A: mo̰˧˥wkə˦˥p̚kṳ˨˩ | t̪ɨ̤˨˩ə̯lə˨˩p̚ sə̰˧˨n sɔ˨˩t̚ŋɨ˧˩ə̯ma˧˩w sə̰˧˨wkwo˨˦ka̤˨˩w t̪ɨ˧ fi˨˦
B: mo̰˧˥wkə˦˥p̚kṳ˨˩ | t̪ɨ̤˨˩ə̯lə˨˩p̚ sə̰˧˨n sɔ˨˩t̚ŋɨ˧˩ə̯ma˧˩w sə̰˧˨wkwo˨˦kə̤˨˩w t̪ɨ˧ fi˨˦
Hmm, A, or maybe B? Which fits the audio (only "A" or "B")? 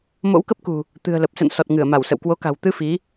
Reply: A